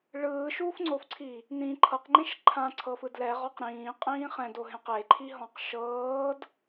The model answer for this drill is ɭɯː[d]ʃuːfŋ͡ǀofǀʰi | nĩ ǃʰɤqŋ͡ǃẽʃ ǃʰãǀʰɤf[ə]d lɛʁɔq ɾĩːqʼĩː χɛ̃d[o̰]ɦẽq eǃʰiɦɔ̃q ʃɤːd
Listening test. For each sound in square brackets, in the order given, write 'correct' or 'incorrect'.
incorrect: none, incorrect: ɯ, incorrect: o

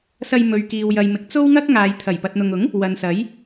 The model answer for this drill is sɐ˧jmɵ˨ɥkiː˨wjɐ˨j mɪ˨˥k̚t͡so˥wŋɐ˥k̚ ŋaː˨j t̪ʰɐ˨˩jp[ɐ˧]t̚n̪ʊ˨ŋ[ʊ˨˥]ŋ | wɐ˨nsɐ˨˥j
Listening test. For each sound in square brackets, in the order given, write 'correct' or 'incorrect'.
incorrect: ɐ˨, correct

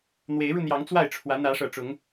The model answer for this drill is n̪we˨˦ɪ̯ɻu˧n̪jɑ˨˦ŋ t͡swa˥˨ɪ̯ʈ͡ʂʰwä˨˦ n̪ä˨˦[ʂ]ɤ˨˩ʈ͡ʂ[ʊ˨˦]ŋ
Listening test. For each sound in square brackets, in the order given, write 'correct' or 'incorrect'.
correct, correct

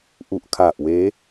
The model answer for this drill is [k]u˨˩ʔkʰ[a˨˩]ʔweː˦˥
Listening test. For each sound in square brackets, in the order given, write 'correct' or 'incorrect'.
incorrect: ʔ, correct

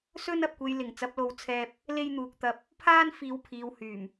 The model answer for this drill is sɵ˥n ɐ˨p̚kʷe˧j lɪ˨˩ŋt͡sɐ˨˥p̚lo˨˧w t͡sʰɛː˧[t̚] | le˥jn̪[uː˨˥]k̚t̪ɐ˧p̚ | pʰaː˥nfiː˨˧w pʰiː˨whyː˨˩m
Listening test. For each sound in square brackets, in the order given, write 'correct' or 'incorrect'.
incorrect: p̚, incorrect: uː˧

